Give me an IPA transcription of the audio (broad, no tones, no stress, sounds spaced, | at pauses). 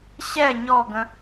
ɕ ɛ ɲ ɔ ɡ ə̃